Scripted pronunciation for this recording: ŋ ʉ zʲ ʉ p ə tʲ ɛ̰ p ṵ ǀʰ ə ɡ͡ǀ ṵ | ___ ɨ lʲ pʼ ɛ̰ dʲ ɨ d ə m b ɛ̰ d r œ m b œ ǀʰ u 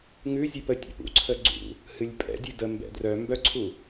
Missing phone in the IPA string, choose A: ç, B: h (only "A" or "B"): B